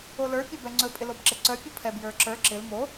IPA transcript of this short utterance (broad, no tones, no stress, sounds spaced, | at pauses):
o l ə˞ pʲ œ b ɛ ŋ͡ǀ ɵ pʼ ɪ l o b ǁ ɪ ǀ œ pʲ u pʰ ɛ b j ə˞ ǁ ə˞ ǁ ɪ l m o